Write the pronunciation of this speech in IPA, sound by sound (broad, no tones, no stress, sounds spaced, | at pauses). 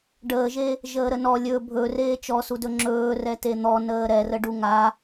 ɖ əː ʒ e | ʒ əː ɾ ə n ɔ lʲ ɵ bʱ ɵ r eː t͡ʃ ɔ s u d ɵ ŋ͡ǁ ɵː r ɛ t e n̪ ɔ n əː ɾ ɛ r ə ɖ u ŋ a